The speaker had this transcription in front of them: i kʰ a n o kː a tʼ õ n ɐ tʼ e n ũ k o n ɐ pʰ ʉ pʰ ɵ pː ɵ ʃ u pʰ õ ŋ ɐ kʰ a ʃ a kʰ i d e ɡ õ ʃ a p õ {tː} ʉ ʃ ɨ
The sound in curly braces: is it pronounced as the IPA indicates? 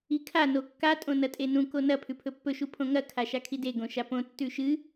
yes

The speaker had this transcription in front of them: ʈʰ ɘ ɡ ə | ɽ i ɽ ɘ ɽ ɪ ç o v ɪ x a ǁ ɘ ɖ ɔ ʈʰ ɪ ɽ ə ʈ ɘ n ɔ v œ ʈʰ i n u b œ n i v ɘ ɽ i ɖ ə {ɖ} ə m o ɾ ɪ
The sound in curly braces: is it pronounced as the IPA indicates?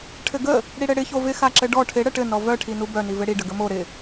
no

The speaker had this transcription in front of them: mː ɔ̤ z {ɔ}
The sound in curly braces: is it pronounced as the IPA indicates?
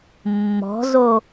no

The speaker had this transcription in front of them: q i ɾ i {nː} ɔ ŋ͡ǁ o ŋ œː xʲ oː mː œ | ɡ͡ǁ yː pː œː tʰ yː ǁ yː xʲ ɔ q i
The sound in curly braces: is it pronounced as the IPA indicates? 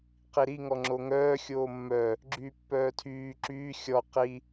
no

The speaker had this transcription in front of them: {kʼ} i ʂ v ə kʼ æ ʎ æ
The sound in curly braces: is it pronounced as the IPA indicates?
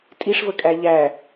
no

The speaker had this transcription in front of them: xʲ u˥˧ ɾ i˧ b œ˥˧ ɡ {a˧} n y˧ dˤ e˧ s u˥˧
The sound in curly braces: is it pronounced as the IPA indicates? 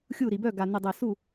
yes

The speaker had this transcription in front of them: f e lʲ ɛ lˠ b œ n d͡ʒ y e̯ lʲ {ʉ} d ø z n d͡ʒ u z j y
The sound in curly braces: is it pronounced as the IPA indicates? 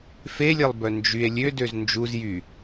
no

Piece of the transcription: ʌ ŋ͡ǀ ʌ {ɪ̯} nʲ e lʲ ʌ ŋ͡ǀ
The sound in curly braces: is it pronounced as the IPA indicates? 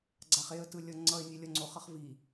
yes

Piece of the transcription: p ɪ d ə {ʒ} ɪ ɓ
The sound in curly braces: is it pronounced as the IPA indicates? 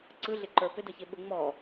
no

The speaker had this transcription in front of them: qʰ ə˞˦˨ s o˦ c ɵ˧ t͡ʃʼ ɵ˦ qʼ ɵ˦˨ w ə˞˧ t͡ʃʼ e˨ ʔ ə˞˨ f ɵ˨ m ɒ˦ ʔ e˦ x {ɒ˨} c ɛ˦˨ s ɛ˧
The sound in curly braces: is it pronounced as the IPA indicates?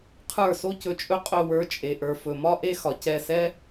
yes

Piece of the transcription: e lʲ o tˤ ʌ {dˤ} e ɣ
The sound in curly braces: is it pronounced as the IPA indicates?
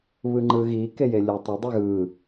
yes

